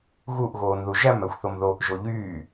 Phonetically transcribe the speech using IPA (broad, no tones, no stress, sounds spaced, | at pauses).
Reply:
ɣ u ʔ ɣ oː n ð u ʒ æ m æ xʷ θ o m ð o ʔ ʒ o ʎ yː